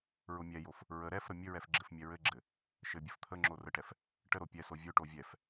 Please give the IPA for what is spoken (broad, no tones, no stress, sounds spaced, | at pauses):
ɹ ʊ mʲ ɛ j o f | ɹ ə ɾ ɛ f ɾ ə mʲ ɘ ɹ ɛ f ɡ͡ǁ ɘ f mʲ ɛ ɹ ɘ ɡ͡ǁ ɘ | ʃ ɘ bʲ ə f t̪ʰ ə ŋ͡ǁ o r ə ʈ ɛ f | ʈ ə ɾ o pʲ ɛ s o vʲ ʊ ʈ o vʲ ɛ f